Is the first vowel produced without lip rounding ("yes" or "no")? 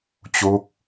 no